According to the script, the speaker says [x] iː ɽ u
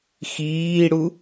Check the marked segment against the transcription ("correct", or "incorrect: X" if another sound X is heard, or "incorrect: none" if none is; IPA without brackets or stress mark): correct